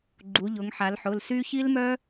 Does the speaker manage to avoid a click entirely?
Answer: no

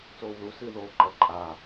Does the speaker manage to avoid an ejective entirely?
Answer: no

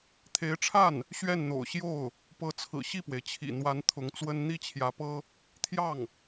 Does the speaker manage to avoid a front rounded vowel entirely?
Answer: yes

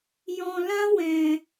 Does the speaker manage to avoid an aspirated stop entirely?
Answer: yes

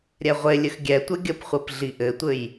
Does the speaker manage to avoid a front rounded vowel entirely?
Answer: yes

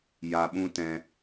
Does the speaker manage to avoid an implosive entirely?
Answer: no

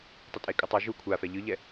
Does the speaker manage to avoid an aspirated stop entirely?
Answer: no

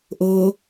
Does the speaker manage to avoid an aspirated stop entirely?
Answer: yes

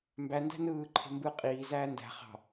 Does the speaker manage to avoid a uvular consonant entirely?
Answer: no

